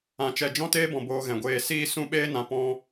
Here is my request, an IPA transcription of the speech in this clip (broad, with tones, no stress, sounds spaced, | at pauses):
ã˨ t͡ʃ ɛ˨ d͡ʒ ɔ̃˦ t eː˦ b ɔ̃˨ b oː˧ ɣ ɛ̃˨ ɡʷ eː˧ s iː˦ s ũ˦ ɓ eː˦ n ã˨ p ɔ̃˧